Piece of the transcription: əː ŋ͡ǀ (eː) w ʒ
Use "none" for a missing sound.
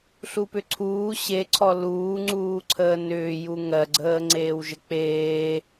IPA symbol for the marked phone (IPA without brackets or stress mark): eː